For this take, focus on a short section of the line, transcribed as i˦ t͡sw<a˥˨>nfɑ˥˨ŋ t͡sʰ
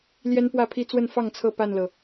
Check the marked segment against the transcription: incorrect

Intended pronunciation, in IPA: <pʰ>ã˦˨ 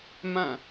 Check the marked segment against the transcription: incorrect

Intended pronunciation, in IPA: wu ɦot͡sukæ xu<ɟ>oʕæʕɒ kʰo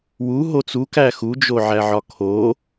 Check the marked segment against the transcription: incorrect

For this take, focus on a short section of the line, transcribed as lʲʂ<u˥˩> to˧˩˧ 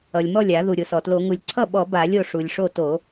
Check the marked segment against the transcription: incorrect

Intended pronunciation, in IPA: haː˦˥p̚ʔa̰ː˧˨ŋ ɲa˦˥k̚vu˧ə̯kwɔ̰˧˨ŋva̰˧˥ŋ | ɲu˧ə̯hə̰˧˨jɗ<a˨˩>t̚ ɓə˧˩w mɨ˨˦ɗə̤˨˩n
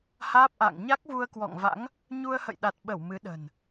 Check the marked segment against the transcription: correct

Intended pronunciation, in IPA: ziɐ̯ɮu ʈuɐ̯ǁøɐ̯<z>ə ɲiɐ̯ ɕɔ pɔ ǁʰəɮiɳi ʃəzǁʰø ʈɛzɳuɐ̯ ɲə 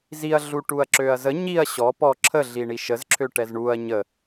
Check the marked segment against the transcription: correct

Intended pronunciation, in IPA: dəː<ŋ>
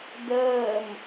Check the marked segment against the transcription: incorrect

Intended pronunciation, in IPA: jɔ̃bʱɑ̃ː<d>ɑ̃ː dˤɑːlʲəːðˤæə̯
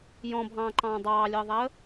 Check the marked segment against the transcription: incorrect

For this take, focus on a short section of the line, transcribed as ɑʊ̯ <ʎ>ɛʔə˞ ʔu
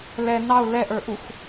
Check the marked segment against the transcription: incorrect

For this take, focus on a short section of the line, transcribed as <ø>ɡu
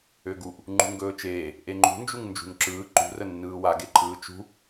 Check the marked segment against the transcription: correct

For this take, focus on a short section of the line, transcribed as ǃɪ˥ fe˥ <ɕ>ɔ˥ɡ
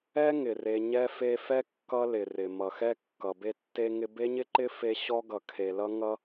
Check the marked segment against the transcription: correct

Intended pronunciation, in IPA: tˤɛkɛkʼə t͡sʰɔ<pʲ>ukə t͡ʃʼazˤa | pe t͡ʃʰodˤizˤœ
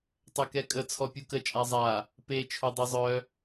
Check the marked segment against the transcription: correct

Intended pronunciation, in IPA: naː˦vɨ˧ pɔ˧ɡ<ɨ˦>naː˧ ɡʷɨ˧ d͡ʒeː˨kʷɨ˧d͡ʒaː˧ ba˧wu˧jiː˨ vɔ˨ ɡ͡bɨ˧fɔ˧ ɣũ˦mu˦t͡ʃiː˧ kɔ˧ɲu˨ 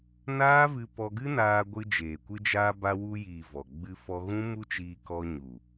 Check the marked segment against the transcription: correct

